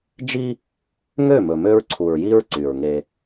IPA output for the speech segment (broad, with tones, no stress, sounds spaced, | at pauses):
d͡ʒ i˦ | ŋ ø˦˨ m ɵ˨ m ø˦ ɹ ǀʰ u˨ ɹ j i˦ ɹ ǀ y˨ ɹ ŋ e˦